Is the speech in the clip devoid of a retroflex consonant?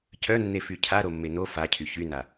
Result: yes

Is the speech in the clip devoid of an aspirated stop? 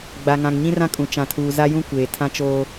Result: no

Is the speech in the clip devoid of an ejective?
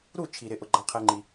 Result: yes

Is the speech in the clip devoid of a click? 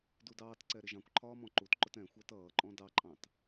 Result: no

